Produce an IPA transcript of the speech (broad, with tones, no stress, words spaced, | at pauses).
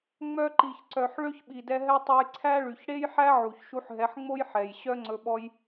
ŋ͡mœ˧ǃi˨ç ǀœ˨ħ ɭø˦çɓi˨dɛ˧ɦɛ˦ tˤe˧jǀʰæ˦ɭy˨ç ɽe˦jħæ˦ʕu˨ç ʃu˧ħɦɛ˨˦ħŋ͡mo˦j ħɛ˨j ɕœ˦ŋ͡ǀɵ˧ɓɔ˦j